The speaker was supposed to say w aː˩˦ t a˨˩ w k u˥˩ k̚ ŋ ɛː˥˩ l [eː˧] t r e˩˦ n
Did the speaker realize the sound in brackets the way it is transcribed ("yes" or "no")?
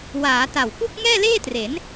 no